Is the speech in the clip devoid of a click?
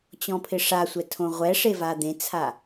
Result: yes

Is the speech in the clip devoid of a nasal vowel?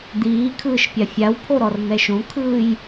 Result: no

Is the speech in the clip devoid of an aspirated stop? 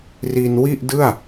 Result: yes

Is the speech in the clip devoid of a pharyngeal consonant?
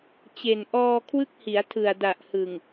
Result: yes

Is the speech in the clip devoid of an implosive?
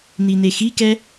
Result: yes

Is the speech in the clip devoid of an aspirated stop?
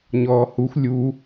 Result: yes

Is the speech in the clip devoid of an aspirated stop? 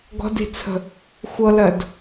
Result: no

